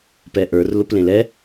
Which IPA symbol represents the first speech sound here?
p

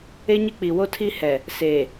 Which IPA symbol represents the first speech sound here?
e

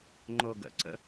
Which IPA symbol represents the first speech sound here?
ŋ͡ǃ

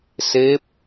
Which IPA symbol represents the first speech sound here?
s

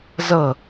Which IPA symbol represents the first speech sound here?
z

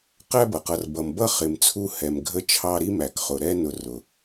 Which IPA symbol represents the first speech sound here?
q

